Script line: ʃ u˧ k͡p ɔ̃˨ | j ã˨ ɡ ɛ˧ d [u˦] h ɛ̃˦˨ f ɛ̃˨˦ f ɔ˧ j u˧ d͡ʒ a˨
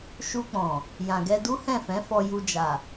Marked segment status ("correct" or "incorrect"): correct